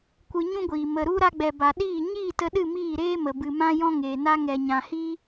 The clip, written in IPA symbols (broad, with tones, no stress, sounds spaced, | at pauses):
kʷ ɨ˧ ɲ ũ˦ ɡʷ iː˨ m ə˨ ɾ u˧ ɾ a˧ ɡ͡b ɛ˨ b a˨ ɗ iː˦˨ ɲ iː˦˨ t ə˧ ɗ ɨ˦˨ m iː˦˨ ɾ eː˦ m ə˨ b ɨ˨ m ã˦ j ɔ̃˦ ŋ eː˨ n a˦ ŋ ɛ˨ ɲ ã˨ h iː˦